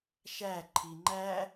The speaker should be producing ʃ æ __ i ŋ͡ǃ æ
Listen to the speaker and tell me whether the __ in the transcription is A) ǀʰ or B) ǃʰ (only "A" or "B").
B